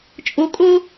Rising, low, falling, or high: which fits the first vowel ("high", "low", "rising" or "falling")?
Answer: high